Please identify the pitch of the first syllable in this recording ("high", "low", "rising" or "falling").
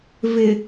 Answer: low